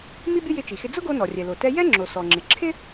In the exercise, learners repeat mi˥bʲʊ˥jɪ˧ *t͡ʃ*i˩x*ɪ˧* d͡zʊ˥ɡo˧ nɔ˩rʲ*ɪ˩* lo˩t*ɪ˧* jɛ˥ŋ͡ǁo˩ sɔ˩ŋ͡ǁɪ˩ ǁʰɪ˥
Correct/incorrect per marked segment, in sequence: correct, correct, incorrect, incorrect

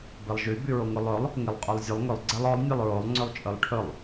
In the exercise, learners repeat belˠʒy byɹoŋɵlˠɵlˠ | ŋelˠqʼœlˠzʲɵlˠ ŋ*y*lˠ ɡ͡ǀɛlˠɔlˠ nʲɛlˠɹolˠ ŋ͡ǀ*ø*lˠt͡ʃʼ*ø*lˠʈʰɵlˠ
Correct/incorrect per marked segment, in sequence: incorrect, correct, incorrect

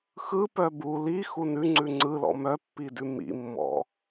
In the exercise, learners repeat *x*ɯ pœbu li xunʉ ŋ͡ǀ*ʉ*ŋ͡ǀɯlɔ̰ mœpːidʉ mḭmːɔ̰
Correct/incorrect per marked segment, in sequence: correct, correct

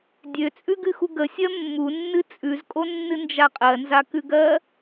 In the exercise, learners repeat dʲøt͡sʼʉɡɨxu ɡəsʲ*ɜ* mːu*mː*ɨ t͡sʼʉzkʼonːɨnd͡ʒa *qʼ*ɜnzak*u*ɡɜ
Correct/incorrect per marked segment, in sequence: correct, incorrect, correct, incorrect

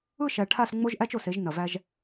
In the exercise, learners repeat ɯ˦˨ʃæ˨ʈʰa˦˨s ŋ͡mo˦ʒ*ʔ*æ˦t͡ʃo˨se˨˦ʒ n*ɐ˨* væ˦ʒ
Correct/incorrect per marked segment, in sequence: correct, correct

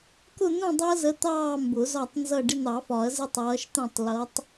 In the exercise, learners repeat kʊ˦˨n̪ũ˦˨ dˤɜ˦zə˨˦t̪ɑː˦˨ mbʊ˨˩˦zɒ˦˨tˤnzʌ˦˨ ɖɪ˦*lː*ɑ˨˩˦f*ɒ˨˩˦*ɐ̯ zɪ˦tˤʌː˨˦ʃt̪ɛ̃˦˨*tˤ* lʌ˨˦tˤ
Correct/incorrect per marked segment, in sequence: incorrect, correct, correct

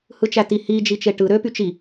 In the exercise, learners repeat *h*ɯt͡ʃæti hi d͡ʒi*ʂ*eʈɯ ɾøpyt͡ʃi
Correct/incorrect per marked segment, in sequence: correct, incorrect

